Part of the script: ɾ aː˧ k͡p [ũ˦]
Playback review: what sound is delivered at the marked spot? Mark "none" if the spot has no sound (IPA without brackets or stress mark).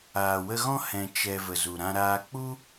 u˦